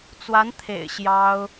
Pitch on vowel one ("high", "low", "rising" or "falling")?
rising